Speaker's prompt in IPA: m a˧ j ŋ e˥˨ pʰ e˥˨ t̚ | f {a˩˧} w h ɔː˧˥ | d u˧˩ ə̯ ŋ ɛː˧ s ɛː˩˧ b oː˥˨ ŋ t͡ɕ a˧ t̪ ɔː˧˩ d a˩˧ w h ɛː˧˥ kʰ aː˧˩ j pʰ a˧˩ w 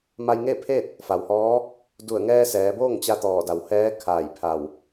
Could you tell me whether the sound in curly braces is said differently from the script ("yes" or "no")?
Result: yes